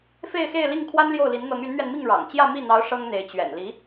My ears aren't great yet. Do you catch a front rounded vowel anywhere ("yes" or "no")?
yes